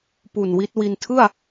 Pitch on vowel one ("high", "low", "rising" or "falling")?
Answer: low